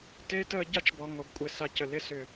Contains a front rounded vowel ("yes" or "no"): yes